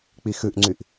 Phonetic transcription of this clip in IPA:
k͡pixʉʔŋ͡ǀyʔ

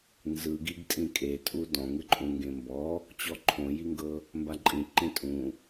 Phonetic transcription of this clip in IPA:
nzɯɡiɡtʼĩ kʼetʼu dɔ̃ ŋɯǃʼũŋɡẽmbɔ | t͡ɕɔǃʰõjiŋɡɤ | mbaǃʼĩ ǃĩtʼũ

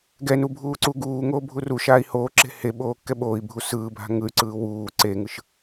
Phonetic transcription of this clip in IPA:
ɡɛnu bʱuːǀuɡuːŋoː bʱuruʃaːi̯ hoːǁe̤ heɓoː kːɛɓoːi̯bʱu sɯːbʱa̤ ŋɯy̯ǀɯː wuː ǀeːŋɯʃ

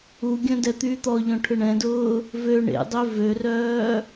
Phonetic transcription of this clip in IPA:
uɡʲœ̃ dɛt̪yːt̪ɔʎɔ̃ ʈʰʏɳɛ̃dʊː | vø ɳḛdˤø vørœː

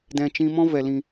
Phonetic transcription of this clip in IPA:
dɛ̃˧ t͡ʃĩ˦ mɔ̃˦ vɛ˨lĩ˨

